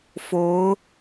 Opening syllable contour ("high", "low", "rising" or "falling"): rising